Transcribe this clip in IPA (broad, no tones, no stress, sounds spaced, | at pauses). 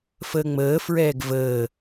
f əː ŋ͡m əː f ɹ ɛː ɡ v əː